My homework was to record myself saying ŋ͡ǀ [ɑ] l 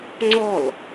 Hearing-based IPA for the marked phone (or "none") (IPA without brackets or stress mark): ɔ